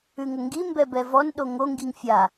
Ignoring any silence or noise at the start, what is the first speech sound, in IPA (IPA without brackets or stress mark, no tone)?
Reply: ʉ